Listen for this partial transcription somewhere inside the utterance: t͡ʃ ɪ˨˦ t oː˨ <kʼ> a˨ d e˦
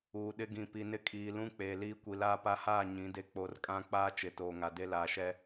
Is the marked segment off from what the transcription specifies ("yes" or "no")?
yes